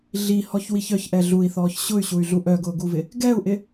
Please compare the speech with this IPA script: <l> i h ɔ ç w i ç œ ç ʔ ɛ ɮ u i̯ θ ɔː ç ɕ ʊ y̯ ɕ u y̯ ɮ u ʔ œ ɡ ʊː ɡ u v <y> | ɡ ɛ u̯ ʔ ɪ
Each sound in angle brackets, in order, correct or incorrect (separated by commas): incorrect, incorrect